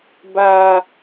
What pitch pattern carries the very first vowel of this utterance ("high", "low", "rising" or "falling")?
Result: high